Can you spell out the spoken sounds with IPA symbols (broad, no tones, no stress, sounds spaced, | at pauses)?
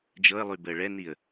d͡ʒ ɤ ə̯ lˠ y b əː ɭ ɛ n i ə̯